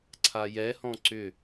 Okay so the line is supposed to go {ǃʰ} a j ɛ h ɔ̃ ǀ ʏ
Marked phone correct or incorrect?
incorrect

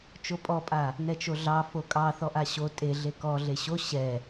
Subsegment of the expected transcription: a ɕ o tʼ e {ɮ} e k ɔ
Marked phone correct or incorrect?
correct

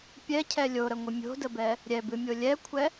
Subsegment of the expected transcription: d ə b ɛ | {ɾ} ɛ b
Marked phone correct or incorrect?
incorrect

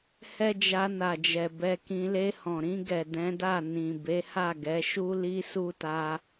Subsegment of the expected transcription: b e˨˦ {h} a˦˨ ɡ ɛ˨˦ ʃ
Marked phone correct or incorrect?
correct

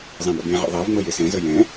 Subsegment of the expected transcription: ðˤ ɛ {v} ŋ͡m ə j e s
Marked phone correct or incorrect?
correct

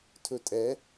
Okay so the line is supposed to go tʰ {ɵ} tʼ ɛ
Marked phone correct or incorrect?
correct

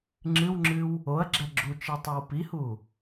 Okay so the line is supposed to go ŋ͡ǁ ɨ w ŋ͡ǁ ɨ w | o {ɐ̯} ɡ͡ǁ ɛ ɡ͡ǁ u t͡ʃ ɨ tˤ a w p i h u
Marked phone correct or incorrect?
correct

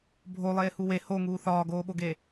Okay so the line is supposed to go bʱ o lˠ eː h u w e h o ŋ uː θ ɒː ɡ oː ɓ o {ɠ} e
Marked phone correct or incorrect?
incorrect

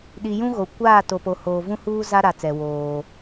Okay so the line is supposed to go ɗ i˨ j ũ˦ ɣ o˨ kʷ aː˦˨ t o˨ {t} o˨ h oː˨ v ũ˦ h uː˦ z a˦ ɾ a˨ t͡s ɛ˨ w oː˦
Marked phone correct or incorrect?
incorrect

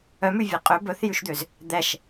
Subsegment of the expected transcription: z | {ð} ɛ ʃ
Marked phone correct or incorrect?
incorrect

